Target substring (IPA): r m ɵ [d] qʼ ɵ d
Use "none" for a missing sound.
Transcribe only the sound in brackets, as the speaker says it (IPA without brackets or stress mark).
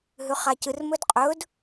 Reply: d